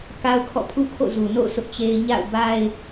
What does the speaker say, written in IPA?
k a˦ ʊ̯ kʰ ɔ̰˦˨ pʰ ṵ˦˨ kʰ o̰˦˨ z u˨ n o̰˦˨ ʊ̯ sʰ ʊ˦ ʔ t͡ɕ e˦ ɪ̯ ɲ a̰˦˨ ʊ̯ b a˦ ɪ̯

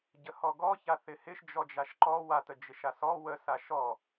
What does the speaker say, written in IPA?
ɟ ə h ɔ ɡ ɔ ç a θ ɪ h ɪ ʃ d͡ʒ ɔ d͡ʒ a ʃ ǃ ɔ w a t ə d͡ʒ ɪ ʃ a s ɔ w ə s a ʃ ɔ

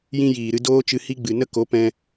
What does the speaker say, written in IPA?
j ĩ˧ j iː˨ ɾ ɨ˧ d oː˦ t͡ʃ ɨ˧ h i˦ ɡ͡b ɨ˨ n ə˦ k o˨˦ p ɛ̃˧

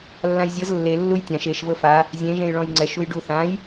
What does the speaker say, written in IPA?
lː ã j zʲ ɤ z lː e lː u j tʲ ã ʃ e ʃ v ɤ f a | zʲ ẽ ʒ ẽ j ɭ ɔ̃ j ŋ͡ǀ ɛ ʃ u j ɖ u θ ã j

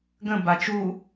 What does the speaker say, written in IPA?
ɡ ə̃ b a t͡ʃ u

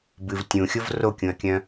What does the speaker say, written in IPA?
b ɨ v tʲ ũ xʲ o v r o kʲ ũ ɐ̯ kʲ œ̃

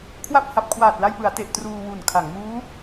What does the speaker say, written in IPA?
kʰ w a˥˩ p̚ h a˨˩ p̚ kʰ w aː˨˩ t̚ l a˧ j p ɯ˩˦ a̯ t e˨˩ ʔ t r uː˧ w u˨˩ n kʰ a˩˦ ŋ m uː˦˥

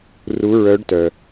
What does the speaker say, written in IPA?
r u˧˥ ɹ œ˧˥ ɖ t œ˩

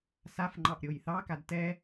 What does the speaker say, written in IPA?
s a f ŋ͡ǃ ɑ ʔ ɾʲ o j θ ɑ k a d t ɛ

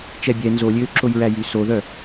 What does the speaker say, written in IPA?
t͡ʃ ɛ bʲ ɛ n z o lʲ øː ǁ o j ɹ æ j y s o ð œ

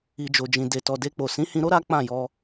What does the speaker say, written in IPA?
i˨ d͡ʒ o˨ d͡ʒ ĩ˨ d e˨ t ɔ˨ d e˧ k͡p o˨ s ĩ˨˦ h ĩ˧ ɾ o˦ ɾ a˦ k͡p ã˦˨ j ɔ˧

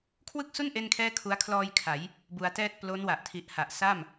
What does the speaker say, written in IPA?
kʰ w ɯ˥˩ k̚ s u˥˩ n ʔ e˥˩ n kʰ ɛː˥˩ kʰ u˦˥ a̯ kʰ l ɔː˧ j kʰ a˩˦ j | b u˧ a̯ t ɛː˥˩ t̚ p l o˦˥ n w a˨˩ ʔ tʰ i˨˩ ʔ h a˨˩ ʔ s a˥˩ m

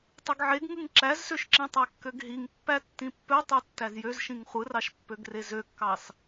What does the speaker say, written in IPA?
tˤ ɯ ɡ ʕ e ɡ ŋ ɯ ŋ ǁ æ z s ø ʃ ǁ ĩ tˤ æ kː ø ɡ ɦ i ŋ pː æ tː ĩ pː ø tˤ ø tː æ z j ø z ʃ ĩ ŋ χʷ ɯ r ɑ ʃ pː ø ɡ r e z ø kː ɑ s

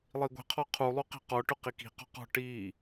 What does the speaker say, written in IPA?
lˠ i ɡʷ i̤ qʰ ɔ qʰ u lˠ u q i̤ q ɔ ʈ ʊ q i k i̤ q ɔ̤ q ɔ̤ ʈ i

